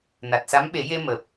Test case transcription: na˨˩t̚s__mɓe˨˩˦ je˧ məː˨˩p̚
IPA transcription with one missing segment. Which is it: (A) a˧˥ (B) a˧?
A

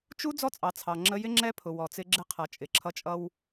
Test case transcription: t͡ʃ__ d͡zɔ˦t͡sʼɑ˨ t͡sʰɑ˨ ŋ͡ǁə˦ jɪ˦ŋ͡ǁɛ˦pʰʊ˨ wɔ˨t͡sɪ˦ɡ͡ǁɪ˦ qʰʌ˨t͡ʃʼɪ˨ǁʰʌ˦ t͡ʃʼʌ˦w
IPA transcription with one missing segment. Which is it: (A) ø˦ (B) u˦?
B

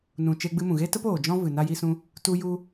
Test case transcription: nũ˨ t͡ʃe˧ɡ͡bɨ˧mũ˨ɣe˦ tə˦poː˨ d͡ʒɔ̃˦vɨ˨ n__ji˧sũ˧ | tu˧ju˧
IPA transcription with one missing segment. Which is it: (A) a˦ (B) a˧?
B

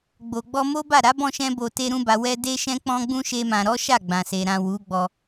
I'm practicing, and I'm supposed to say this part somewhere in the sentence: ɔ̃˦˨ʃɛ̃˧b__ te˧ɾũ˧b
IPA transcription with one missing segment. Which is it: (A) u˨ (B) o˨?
B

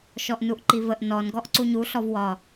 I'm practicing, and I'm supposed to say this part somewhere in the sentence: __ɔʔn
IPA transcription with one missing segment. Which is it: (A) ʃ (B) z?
A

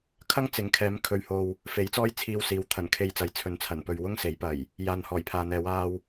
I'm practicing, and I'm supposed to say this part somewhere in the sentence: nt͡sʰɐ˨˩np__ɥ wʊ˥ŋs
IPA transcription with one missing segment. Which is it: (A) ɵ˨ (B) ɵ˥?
A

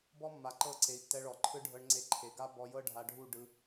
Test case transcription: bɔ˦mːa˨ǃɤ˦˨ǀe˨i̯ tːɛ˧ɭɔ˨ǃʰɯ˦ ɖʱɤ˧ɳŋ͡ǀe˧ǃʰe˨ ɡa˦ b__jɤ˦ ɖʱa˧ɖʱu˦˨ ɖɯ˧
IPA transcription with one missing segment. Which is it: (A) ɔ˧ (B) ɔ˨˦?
A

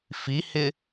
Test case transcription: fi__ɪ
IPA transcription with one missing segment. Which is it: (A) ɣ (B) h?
B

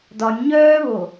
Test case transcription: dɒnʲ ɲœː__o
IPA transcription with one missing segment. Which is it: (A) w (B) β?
B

